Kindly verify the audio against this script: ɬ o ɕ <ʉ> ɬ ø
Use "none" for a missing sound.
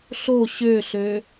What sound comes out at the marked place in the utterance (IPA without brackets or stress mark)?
ø